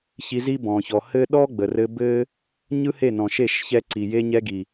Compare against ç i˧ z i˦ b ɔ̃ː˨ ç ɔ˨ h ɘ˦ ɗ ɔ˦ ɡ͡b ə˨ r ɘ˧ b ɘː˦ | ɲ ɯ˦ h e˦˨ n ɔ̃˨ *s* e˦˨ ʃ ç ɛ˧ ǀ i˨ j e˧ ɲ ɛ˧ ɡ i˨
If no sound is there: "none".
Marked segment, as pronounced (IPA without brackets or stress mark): ʃ